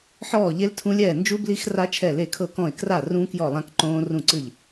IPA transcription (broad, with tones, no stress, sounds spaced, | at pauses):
ħ ɔː˥˨ ʎ e˦˥ l tʰ ũ˦˥ lʲ ɛː˥˨ n d͡ʒ u˦˥ b l i˦˥ x r a˦˥ t͡ʃʰ ɛ˥˨ l e˥˨ kʰ ɤ˥˨ k ɔ̃˥˨ ɪ̯ k r a˥˨ r ũ˦˥ k j ɔ˥˨ lˠ ã˦˥ k ǃ õː˦˥ r ũ˥˨ ǀ ɯ˥˨ ʎ